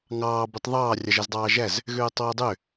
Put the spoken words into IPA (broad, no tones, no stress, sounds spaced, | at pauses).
ŋ ɑː b y tˤ ðˤ ɑː rʲ ɑ ʒ æ z dˤ ɑː ʒ æ z | ɣ øː tˤ w ø dˤ ø